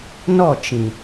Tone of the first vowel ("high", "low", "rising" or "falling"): falling